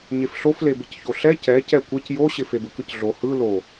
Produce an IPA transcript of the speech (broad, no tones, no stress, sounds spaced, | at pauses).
ɲ e f ɬ o f l e b ɪ c ç o ɬ ɛ c ɛ c ɛ kʷ e c j o ɕ ɪ f e b ɯ k ɯ c ɮ o h ɯ l o